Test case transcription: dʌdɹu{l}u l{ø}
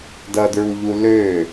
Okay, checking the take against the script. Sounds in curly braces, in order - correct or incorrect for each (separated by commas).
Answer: incorrect, correct